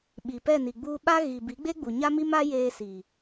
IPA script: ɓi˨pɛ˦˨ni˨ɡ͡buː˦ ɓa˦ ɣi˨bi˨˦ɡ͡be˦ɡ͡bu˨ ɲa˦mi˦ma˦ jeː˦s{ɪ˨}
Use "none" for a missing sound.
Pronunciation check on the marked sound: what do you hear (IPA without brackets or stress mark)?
i˨